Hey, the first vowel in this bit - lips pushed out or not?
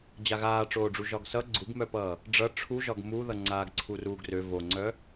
no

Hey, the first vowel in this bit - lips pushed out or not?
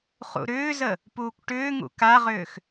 yes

